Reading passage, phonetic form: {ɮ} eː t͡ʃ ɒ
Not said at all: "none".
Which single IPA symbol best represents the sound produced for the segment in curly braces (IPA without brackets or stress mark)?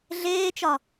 ɮ